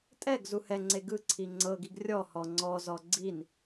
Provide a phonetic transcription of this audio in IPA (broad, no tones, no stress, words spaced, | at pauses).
tʼɛɡ zuhɛŋ͡ǀe ɡɯǀʰi ŋ͡ǀɤɡiɡ rʲɔhɔ ŋ͡ǀɔzɔ ɡ͡ǀin